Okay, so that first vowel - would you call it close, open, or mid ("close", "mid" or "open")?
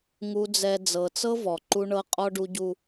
close